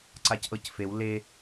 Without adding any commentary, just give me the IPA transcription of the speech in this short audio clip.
ǀ a c ʔ ɤ c f e w l e

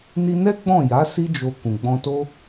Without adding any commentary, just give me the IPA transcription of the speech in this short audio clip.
n i˧ n ɛ˦ ɡ͡b ɔ̃˦˨ j a˨˦ s i˦ d͡ʒ o˧ k ũ˨ ɡ͡b ɔ̃˧ t o˦

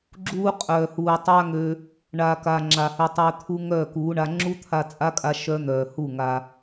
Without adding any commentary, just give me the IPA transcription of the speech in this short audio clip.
ɡ͡ǁ uː˧ qʼ œː˨ h uː˨ tˤ a˧ ŋ ø˧ | ɳ aː˨ k aː˨ ŋ͡ǁ aː˨ h ø˧ tˤ œː˧ t̪ʰ u˦ ŋ œː˦˨ k uː˨˦ ɳ a˧ ŋ͡ǁ u˦ t̪ʰ a˧ t͡sʼ a˦ kʼ a˧ ʃ œ˦ n̪ œː˨ h u˦˨ ŋ a˧

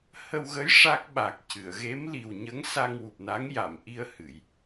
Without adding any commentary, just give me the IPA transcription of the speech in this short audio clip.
h ə˧ w ɣ ə˧˥ j ʂ a˦˥ k̚ ɓ a˨˩ k̚ c ɨ˨˩˨ ə̯ ɣ e˧˥ m l i˨˩ w ɲ ə˧˥ ŋ s a˧ ŋ w u˨˩ p̚ n a˧˥ ŋ j a˨˩˨ m ʔ i˧ ə̯ h ɨ˨˩˨ j

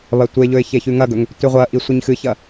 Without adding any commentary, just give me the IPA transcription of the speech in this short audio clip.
β ɐ tʷ e ʎ ɵ ɪ̯ ç e ç ʉ ŋ ɐ ɡ ɵ ŋ | t ʉ ʁʷ ɐ ʔ i sʷ i ɲ x ɨ ç ɐ

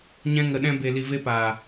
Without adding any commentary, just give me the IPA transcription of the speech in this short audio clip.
ɲ ɛ̃˧ ŋ ə˨ ɗ ɛ̃˧ b e˨ l i˨ v e˧ p aː˨

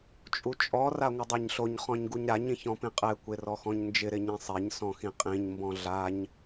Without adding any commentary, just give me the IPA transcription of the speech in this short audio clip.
t͡ʃʼ u t͡ʃʼ ɔ r a ŋʷ ɪ dˤ a ɲ ɬ o ɲ χ ɔ̃ ɲ ɡ u ɲ ɾ a ɲ ĩ ç ɔ̃ p ĩ qʼ ɛ kʷ e r ɔ x ɔ̃ ɲ n d͡ʒ ɪ ɾ ɪ ɲ ĩ sˤ e ɲ s ɔ̃ x ĩ qʼ ĩ ɲ m b ɔ̃ ɮ a ɲ

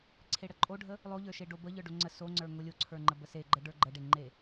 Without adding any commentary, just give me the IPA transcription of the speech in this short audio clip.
ǀʰ e ɽ ə ǃʼ o ɖʱ ə | lˠ o ʎ ə˞ ʃ e ɖ o b ə ʎ ə˞ ɖ o ŋ͡ǀ ə s o ŋ͡ǀ ə˞ ŋ o lʲ o ǀʰ ə˞ ŋ͡ǃ ə b ə s e ɡ͡ǃ ə ɖ ə˞ ɡ͡ǃ ə ɖ e ŋ͡ǃ e

